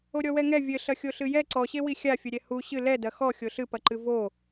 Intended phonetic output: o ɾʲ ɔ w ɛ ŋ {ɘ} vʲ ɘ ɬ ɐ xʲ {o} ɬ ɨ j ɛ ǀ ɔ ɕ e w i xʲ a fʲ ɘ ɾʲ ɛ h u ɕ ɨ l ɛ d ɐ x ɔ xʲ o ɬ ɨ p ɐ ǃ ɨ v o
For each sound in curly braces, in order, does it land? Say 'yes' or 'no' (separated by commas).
no, yes